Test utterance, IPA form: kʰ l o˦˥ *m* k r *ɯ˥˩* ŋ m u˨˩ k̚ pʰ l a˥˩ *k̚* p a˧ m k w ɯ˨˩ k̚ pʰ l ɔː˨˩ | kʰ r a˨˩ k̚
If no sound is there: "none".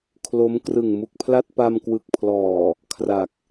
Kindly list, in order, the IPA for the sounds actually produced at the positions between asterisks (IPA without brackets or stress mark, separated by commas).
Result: m, ɯ˨˩, t̚